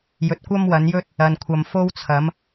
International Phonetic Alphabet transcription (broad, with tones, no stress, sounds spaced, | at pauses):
j ɵ˨˥ t̚ kʷ ɐ˥ m w ɐ˨˥ n j ɵ˥ t̚ | ɐ˨ n kʷʰ ɐ˨ m f o˥ w t͡sʰ ɐ˨˥ m